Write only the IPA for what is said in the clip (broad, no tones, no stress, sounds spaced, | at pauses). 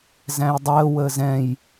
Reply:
z æ̃ j dˤ əː w əː z ɛ̃ j